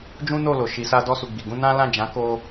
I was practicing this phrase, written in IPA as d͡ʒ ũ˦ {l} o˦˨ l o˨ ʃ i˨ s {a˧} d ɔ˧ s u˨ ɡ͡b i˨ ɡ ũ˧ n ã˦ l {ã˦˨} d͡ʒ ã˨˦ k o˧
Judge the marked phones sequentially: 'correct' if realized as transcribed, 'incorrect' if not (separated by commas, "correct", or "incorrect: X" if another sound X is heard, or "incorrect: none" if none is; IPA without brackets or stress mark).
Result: incorrect: n, correct, correct